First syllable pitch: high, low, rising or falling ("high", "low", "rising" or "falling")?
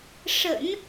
low